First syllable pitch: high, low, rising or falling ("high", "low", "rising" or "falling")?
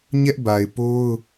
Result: high